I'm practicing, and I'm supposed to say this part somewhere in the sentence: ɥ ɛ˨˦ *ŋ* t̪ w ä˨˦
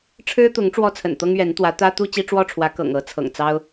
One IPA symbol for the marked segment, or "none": n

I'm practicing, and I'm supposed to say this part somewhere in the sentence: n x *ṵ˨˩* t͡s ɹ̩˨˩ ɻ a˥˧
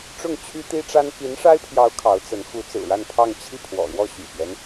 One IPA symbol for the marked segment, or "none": u˧˥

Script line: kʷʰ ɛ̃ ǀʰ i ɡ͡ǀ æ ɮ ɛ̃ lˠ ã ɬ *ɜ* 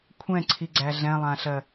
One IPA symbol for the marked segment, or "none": ɜ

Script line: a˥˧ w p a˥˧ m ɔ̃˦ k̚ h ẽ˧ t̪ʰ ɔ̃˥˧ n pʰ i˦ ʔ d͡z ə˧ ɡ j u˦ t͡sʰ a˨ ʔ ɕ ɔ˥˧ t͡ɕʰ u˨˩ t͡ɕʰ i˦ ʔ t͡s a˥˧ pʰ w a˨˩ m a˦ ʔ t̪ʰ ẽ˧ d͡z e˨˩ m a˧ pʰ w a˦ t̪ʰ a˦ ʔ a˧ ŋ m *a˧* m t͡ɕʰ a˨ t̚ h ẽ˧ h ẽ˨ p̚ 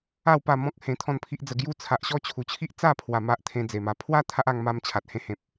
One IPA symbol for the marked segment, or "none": a˧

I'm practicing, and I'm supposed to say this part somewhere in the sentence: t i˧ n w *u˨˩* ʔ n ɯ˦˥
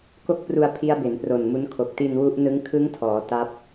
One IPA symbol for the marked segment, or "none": u˦˥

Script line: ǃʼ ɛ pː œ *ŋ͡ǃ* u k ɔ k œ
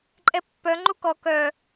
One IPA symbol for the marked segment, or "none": ŋ͡ǃ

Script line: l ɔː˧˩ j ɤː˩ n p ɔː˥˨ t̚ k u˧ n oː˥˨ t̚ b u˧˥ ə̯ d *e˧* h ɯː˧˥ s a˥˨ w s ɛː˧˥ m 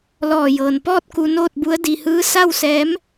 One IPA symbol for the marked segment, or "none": i˧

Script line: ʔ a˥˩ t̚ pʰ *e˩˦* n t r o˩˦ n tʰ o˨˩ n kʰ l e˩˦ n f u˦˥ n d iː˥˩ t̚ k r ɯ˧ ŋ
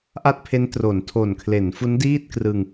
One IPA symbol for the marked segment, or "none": e˦˥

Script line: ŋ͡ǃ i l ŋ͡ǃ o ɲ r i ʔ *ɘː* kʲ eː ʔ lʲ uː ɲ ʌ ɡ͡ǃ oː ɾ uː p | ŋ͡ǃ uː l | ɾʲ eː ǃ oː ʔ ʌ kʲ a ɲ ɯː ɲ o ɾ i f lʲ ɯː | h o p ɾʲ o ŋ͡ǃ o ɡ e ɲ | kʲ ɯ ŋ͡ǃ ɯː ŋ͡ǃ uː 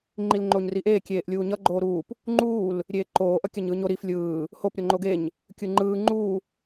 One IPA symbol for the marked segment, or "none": eː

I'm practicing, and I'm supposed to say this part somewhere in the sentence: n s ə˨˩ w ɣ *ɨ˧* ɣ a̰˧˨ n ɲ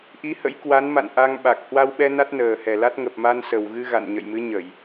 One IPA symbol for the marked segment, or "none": ɨ˧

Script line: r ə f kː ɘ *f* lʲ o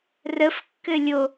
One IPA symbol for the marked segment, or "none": none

